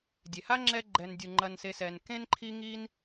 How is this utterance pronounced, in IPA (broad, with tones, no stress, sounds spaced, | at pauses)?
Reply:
dʲ e˩ h a˥ ŋ͡ǁ ɛ˦ ɡ͡ǃ ɛ˨ n dʲ u˩ ŋ͡ǃ ɐ˨ n s e˨ s ɛ˩ n k ẽ˥ n ǃʰ i˦ ŋ i˦ n